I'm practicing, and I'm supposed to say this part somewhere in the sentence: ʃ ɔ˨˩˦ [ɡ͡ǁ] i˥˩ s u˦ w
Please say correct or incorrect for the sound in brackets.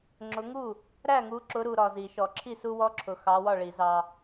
incorrect